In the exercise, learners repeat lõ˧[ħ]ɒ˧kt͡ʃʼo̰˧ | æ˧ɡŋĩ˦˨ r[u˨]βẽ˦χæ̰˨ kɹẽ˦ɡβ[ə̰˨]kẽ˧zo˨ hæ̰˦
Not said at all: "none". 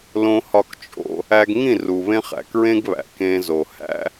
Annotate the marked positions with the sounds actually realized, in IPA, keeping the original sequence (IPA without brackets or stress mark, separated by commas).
h, u˨, æ̰˨